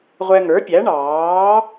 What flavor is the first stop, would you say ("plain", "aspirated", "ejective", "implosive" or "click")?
plain